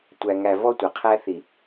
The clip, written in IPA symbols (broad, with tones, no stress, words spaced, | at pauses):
tʷæ˨ŋæ˨ vɔ˦tʷæ˨qʰæ˦ θi˨